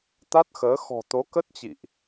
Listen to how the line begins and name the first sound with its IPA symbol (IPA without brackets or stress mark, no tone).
t̪